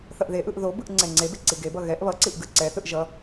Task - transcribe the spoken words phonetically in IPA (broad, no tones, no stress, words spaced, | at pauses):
θʌʔðeʔɯʔ ðobɯʔ ŋ͡ǀɛŋ͡ǀebe ǀiɡebʌ ɣɛʔ βʌǀiʔ ɡɯǀɛθɯʔ ʒʌ